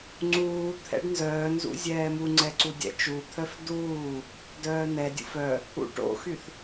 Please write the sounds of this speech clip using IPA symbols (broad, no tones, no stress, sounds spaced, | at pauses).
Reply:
ŋ͡ǀ uː t̪ʰ ɛ̰ ɖ n z œː n z ṵ zʲ ɛː m u ŋ͡ǀ ɛ ǀ u dʲ ɛ̰ t͡ʃ u t̪ʰ œ f d uː | d œː n ɛ dʲ ṵ f œ | ṵ ʈ o̰ x y θ